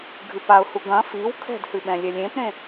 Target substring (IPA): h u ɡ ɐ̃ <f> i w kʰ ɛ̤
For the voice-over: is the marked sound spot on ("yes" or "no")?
yes